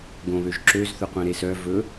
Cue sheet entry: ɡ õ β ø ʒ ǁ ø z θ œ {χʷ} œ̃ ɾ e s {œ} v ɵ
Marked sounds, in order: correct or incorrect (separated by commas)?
incorrect, correct